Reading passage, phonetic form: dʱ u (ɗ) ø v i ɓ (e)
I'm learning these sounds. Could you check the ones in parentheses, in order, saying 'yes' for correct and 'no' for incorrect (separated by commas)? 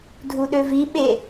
yes, yes